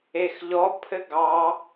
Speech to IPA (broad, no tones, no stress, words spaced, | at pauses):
exʎɔ pʰɘɡɑ